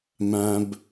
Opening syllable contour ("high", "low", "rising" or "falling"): low